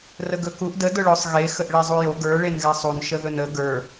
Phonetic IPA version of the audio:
r ə ɡ ɵ k u ʔ d ə d ʊ ɭ ʊ sˤ ɣ e x ə ʔ ɭ e zˤ u j o ɡ ə˞ ɭ e n ɣ ɛ sˤ u n ʃ ə ð ɵ n ə ɡ ə˞

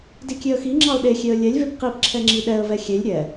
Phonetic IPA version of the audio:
d i kʲ e ə̯ x i ŋ͡ǁ ɑ ʊ̯ ɗ e xʲ e ə̯ lʲ ɛ lʲ v e p q i p ǁʰ ɛ ŋ͡ǁ i ɗ ɛ ə̯ v ɛ xʲ e lʲ ɾʲ ɛ

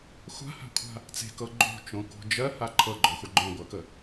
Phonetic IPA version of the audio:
xʷ a̤ h a̤ kʷʰ a̤ | t͡s e̤ k ɤ ɡ͡ǃ o̤ t͡ʃ õ k o̤ d͡ʒ ɜ h a ǃʰ ɤ ɡ͡ǃ ɔ xʷ a ɡ͡ǃ õ ɡʷ ɜ k ə

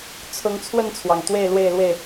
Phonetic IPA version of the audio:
t͡sʰ ʊ˨˦ ŋ t͡sʰ w ə˥˨ n t͡sʰ w ɑ˩ ŋ t̪ w e˥˨ ɪ̯ l w e˥˨ ɪ̯ l w e˥˨ ɪ̯

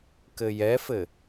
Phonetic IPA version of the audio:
k ɘ j ɛ f ɘ

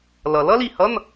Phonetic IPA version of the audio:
l ʌ˩ l ʌ˥ l i˩ h ʌ˧˥˧ n

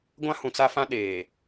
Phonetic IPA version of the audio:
ɡʷ ã˦ h ũ˨ t͡s a˦ f ã˦ ɗ eː˨

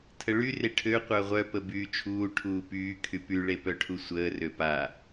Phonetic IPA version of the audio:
tʰ ə ɭ y r e ʈʰ ø qʷ œ ʁʷ œ p ə b yː t͡ʃʰ uː ʈʰ uː p yː kʰ y p y ɭ e p œ ʈʰ u sʷ əː r ø p a

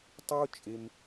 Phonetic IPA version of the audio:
tˤ o˥ t͡ʃʼ e˧ m

